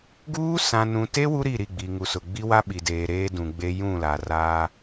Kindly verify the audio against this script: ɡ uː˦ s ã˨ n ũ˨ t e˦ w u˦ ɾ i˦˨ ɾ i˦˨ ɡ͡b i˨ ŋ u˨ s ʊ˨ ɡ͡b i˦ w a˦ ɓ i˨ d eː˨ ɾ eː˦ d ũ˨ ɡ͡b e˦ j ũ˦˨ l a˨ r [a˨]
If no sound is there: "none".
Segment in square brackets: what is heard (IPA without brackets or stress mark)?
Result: a˦